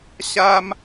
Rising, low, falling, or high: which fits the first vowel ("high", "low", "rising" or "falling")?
high